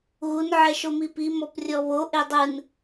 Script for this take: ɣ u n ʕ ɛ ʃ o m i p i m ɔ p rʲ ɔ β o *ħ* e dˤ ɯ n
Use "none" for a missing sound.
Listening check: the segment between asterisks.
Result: ʔ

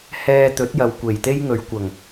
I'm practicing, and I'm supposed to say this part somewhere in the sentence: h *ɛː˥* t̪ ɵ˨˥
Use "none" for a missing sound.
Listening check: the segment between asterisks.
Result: ɛː˧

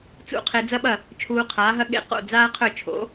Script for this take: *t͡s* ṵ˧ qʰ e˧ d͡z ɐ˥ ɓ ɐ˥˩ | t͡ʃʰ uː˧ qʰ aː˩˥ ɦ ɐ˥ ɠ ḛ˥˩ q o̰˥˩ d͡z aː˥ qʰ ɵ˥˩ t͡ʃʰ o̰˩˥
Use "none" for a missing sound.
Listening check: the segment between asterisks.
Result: t͡s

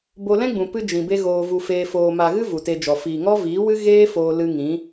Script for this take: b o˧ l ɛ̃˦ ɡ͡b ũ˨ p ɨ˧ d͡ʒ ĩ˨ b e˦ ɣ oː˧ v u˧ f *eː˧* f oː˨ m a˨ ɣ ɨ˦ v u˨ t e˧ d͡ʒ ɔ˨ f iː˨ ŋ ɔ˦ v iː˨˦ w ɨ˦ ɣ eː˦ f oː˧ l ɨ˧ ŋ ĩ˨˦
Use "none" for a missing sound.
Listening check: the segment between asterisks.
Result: eː˧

